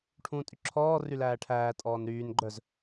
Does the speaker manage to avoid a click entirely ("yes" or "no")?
no